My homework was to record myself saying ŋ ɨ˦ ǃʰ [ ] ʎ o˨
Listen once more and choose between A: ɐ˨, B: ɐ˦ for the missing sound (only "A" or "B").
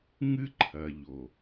A